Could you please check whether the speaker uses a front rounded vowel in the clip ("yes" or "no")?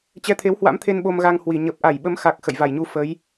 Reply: no